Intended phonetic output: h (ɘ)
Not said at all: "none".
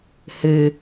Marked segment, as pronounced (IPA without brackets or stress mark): ɘ